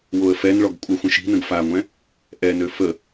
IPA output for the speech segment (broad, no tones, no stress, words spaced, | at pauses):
woə̯fɛnɭɔɡ kʷʼœxʷə̃ʃi̤nə̃ɡ faŋʷɛ̃ | ʔɛnø fə